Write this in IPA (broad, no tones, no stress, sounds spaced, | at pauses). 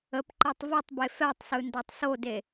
ə p ǃ ɛ tˤ v i tˤ b e f ɛ tˤ s ɯ n d a tˤ s o d e